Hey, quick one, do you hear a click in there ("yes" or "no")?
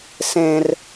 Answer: no